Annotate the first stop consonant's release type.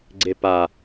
click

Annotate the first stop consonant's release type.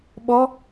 implosive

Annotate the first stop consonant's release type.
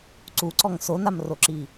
click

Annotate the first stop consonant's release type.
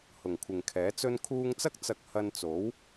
aspirated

